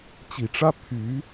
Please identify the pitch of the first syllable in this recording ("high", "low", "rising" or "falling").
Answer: low